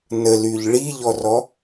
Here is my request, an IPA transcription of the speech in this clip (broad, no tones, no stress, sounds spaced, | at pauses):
n ə l y ʎ ɭ i ʎ ɔ r ɔ